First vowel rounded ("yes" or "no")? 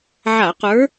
no